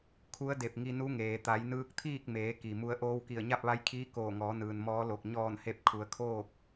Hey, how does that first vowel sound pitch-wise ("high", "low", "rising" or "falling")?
rising